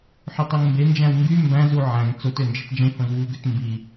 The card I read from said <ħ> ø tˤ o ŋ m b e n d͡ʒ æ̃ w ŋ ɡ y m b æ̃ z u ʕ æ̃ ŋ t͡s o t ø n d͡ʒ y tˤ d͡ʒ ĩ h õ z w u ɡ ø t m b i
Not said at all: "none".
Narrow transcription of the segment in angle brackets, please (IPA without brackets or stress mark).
ħ